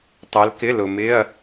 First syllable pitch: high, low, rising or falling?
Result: rising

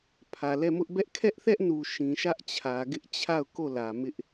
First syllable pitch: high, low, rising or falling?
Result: low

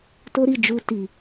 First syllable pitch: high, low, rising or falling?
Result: high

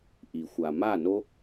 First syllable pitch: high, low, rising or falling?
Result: low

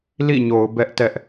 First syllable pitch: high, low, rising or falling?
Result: falling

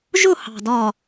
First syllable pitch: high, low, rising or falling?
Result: falling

